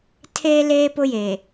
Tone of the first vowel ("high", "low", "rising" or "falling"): high